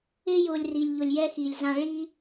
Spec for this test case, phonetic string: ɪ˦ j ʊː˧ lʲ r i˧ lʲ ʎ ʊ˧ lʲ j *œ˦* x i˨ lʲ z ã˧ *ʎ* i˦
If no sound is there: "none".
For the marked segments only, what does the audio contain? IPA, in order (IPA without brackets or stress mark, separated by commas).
ɛ˦, ɭ